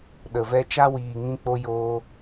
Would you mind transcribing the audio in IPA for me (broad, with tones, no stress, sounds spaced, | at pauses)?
ɗ ə˨ v ɛ˦ t͡ʃ a˦ w iː˨ ŋ ĩ˧ k͡p o˧ j oː˦